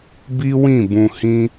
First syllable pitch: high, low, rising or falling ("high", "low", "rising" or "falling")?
high